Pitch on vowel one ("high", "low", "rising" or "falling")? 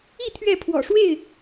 falling